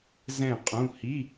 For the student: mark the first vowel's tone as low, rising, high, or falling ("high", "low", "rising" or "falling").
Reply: falling